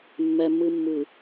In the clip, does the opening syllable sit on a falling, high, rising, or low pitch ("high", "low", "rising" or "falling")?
low